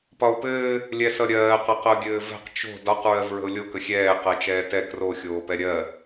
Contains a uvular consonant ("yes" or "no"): yes